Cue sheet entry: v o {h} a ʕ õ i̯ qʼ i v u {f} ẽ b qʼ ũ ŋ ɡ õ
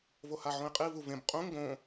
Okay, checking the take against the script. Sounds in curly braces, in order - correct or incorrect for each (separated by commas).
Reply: correct, incorrect